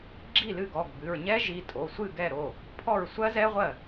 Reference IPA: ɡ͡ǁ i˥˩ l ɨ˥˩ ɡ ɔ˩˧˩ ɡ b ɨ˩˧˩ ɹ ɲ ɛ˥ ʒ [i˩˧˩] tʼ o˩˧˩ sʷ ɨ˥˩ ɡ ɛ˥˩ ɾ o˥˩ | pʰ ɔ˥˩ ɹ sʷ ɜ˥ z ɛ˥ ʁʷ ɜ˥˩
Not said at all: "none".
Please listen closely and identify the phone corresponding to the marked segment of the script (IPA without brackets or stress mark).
i˩˧˩